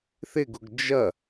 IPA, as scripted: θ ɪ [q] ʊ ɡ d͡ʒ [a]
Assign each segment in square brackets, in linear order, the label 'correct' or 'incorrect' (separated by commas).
incorrect, incorrect